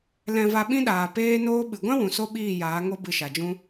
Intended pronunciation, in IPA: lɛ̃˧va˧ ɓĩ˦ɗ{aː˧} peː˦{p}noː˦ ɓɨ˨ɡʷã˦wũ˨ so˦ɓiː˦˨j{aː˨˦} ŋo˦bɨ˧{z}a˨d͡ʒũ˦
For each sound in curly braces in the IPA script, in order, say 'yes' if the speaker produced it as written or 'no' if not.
no, no, yes, no

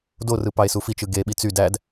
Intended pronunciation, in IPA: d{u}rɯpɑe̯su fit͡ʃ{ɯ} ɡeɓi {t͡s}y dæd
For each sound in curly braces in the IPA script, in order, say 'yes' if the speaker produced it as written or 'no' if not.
no, yes, yes

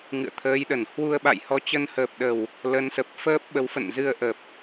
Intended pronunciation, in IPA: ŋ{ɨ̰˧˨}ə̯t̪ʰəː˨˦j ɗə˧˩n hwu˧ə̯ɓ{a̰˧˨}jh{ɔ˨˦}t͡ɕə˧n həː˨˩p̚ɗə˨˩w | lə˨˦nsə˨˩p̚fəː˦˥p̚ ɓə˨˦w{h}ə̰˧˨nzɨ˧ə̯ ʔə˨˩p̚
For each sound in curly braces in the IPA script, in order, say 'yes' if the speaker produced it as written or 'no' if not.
yes, yes, yes, no

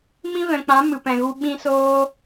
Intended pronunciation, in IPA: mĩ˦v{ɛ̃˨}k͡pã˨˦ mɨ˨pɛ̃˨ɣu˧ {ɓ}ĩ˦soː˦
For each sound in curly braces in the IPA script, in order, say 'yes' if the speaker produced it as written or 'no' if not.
yes, yes

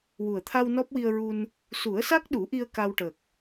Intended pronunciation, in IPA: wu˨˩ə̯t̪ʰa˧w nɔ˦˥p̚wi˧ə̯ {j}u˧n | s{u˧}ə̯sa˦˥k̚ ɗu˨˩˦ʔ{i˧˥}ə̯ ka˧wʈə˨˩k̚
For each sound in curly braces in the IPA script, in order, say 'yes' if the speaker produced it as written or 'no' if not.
no, no, no

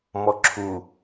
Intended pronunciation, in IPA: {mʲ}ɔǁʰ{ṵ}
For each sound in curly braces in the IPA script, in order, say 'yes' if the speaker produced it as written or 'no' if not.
no, no

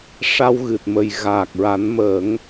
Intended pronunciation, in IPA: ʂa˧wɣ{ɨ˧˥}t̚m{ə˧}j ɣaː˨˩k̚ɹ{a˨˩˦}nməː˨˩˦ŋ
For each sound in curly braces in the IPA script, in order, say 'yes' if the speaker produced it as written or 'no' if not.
no, no, yes

